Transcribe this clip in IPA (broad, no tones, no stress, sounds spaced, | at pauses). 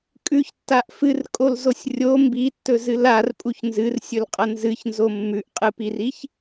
kʼ ʉ ç tː a ʔ f ɨ r kʼ o l z o sʲ rʲ o m b i tː ɵ z ɨ l a r pʼ u ç n z ɨ r sʲ ɵ l qʼ ɐ n z ɨ ç n z o mː ʉ ʔ qʼ ɨ p i r i ç